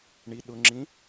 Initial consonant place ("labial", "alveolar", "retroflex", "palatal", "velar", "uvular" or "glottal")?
retroflex